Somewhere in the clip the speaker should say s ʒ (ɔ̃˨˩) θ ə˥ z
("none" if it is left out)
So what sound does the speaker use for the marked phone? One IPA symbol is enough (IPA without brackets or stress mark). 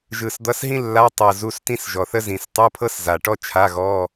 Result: ɔ˨˩